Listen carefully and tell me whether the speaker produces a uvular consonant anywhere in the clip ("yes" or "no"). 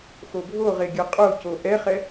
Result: yes